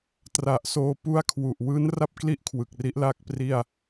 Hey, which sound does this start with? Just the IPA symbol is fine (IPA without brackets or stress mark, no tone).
t